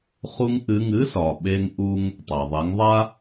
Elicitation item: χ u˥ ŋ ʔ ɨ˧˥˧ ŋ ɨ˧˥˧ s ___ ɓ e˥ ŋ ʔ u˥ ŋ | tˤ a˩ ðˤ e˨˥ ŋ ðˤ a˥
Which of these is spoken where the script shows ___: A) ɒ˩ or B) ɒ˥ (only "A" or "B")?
A